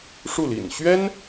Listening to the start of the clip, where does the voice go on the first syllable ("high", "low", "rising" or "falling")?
falling